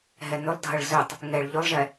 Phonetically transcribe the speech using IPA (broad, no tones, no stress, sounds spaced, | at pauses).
ɦ ɛ n ʏ lˠ dʱ ɐ ɭ z ʏ tˤ | ŋ ɛ ɭ ʎ ʏ lˠ ʒ ɛ